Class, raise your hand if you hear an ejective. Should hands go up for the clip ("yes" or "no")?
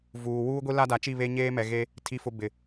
no